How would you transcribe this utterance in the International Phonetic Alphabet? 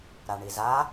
ɾ a ɳ i z a

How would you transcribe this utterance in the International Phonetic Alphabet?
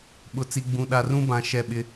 ɓ ʊ˨ t͡s i˨ ɡ͡b ũ˨ ɗ a˨ r ũ˦ b ã˨ ʃ ɛ˦˨ ɓ ɪ˦

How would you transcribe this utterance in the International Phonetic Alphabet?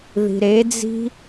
ð i̤ ɾ e d͡z i̤

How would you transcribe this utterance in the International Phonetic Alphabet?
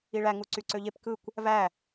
i ɭ æ ŋ u ǀ y ǀ ø ʎ e p k ɯ kʷ | v æ

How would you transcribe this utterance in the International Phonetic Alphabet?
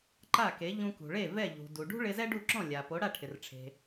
ǃ a˥˩ k e˩˥ ʎ ũ˧ k ṳ˩ ɭ e˥˩ v ɛ˥˩ ʎ ṳ˩ d u˩ ɖ ṳ˥ ɭ ɪ˧ z ɛ˥ ɖ u˥˩ ǁ ɔ̃˥˩ lʲ a˩ p o˩˥ ɽ a˥˩ ʈʰ ɪ˩ r ʈ͡ʂʰ e̤˩

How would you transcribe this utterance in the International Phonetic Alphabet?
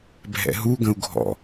bʱ ɛ̰ ɦ u ɡ ə̃ u̯ ɡʱ ɔ̰

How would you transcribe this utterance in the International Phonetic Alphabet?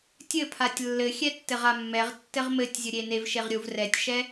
tʲ ɘ pʰ a tʲ lː ɘ xʲ ɛ tː ɘ ʁ a mː ɛ ʁ tː ɘ ʁ m ɘ tʲ zʲ ə ɾʲ e n e v ʃ e ʁ ɾʲ u v r ɛ tʲ ʃ ɛ

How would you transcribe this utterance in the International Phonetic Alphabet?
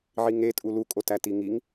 ʕ i ŋ e tʼ u l u kʼ o t æ t i ŋ i ŋ

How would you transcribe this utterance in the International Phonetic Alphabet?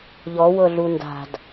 ʎ ɔ w ɤ ɮ u n d a̤ d

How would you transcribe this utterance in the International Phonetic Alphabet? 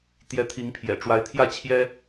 t̪ j ɛ˧˥ t̪ʰ i˧˥ ŋ pʰ j ɛ̰˨˩ ʈ͡ʂ w a˧˥ ɪ̯ t̪ʰ j ä˥˩ t͡ɕʰ j ɛ˥

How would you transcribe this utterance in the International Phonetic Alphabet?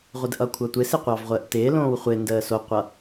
ʁʷ ɪ d ʔ ʌ kʷʰ ʌ tʷ ɪ s ɪ qʷ ɑ v ʁʷ əː ʔ t ɪː l õː w χʷ ɪ n d əː s o qʷ ʌ

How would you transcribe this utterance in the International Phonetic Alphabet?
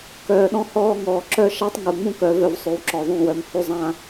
k œː˨ ɗ ɔ̃˧ h ɔː˧ ŋ ɔː˨ ǁ œ˦ ʃ a˦ tˤ ŋ u˨ ŋ͡m ũ˦ k œ˨˦ v œ˧ v sˤ ʉ˨ w ǁ ɔ˨ ðˤ ũ˦˨ w œ˧ m h ʉ˦ zˤ ã˦

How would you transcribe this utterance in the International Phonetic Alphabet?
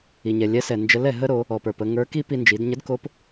i˩ ɲ ɛ˩ lʲ ɛ˧˥ s ɛ˩ n d͡ʒ ə˧˥ l ɛ˩ ɦ ə˥ ɾ o˩˧ | ɔ˩ p ə˞˩ p ə˧ ŋ ə˞˧˥ k i˥ p i˧ n d͡ʒ i˩˧ d ɲ ə˧˥ d k o˧˥ p

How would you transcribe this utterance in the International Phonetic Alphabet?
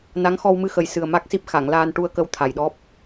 n a˧˥ ŋ x ɔ˧ w m ɨ˧ x ə˨˩ j s ɨ˨˩ ə̯ m a˦˥ k̚ s i˦˥ p̚ x a˨˩˨ ŋ l aː˧ n ʈ u˧ ə̯ k ə˧˥ w t̪ʰ a˨˩ j ɗ ɔ˦˥ p̚

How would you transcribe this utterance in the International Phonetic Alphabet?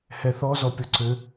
h ɛ θ ɔ z ɔ pʲ ɔ ǀ ɘ

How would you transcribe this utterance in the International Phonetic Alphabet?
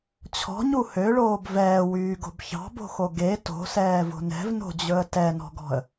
t͡ɕʰ ɔ̤ ɲ u h ø ɭ oː b v ɛː w yː ɡ o̤ b ç ɑ̤ b o̤ x o ɡ e t o̤ s ɛː v o̤ n ɛ̤ v n o̤ d͡ʑ ɵ ə̯ t ɛ n ɔ̤ ɡ ɔ̤ ə̯

